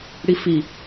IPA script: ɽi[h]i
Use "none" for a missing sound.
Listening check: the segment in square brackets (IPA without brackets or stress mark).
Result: f